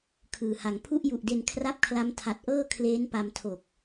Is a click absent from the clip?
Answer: yes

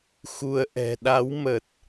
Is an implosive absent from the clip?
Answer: no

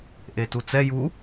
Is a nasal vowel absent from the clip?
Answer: yes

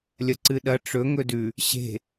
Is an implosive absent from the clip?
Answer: no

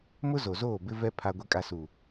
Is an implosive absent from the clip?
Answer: yes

